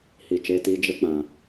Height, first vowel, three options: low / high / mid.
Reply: high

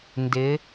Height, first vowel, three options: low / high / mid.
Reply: high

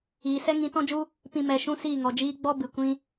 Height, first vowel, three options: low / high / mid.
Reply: high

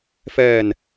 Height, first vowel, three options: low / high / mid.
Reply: mid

